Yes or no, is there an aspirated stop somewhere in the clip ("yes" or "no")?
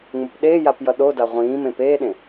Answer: no